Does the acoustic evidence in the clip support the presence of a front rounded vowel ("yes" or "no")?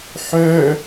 yes